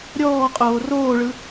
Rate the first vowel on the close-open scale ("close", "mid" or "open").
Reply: mid